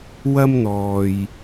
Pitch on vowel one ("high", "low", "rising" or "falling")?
high